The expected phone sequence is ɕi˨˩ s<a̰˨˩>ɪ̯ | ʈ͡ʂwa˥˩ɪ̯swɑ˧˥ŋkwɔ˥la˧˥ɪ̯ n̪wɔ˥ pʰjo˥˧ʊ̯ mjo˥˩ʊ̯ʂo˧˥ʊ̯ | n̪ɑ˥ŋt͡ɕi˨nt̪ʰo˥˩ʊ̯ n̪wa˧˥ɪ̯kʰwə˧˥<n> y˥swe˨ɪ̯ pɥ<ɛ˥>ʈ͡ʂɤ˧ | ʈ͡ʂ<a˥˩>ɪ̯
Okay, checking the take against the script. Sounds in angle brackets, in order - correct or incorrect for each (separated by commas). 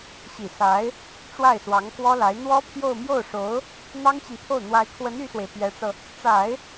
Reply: incorrect, correct, incorrect, incorrect